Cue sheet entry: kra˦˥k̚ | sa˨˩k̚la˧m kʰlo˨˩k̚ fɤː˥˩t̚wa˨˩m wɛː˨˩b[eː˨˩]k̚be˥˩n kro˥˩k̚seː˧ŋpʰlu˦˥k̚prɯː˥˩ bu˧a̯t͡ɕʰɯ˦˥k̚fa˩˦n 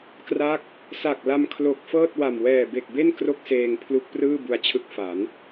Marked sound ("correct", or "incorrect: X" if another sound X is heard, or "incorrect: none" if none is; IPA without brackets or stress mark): incorrect: e˨˩